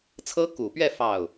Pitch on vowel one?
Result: high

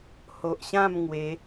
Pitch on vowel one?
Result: low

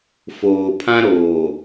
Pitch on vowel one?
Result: low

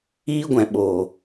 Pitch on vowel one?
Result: high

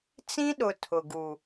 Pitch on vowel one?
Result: high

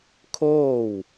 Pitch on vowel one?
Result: falling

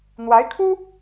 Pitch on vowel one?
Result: rising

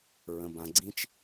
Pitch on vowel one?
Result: low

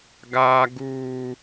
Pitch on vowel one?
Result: high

